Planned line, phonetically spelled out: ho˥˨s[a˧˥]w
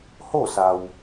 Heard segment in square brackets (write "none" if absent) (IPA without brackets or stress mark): a˩